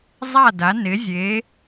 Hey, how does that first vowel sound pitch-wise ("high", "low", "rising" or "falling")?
falling